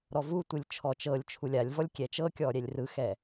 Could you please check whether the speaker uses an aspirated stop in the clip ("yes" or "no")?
yes